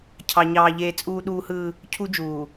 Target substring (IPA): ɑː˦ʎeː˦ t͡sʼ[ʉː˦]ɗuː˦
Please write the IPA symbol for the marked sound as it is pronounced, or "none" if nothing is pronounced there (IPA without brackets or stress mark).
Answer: uː˦